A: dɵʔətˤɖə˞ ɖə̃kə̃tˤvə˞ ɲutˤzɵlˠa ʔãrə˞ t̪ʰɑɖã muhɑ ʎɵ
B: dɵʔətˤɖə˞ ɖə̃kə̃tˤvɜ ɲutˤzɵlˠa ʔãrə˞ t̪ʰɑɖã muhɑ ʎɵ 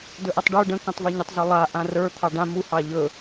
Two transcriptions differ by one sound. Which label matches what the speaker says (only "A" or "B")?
A